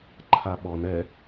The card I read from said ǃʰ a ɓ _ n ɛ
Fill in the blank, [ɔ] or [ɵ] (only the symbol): ɔ